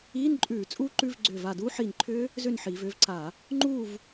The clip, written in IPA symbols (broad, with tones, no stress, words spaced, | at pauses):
iː˧˥˧nǃʼʉː˧˩˧ t͡sʼuː˦˥ǃʉ˧˥˧v ɡ͡ǀʏː˧˩va˧˩duː˦˥ ħiː˧˩nǃʰʏː˦˥ | zʏ˥˨nħiː˩˧vʏː˥˨vǀa˧˩˧ | ŋ͡ǃuː˥˨v